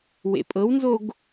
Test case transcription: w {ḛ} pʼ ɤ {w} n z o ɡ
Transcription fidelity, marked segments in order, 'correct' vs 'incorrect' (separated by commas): correct, correct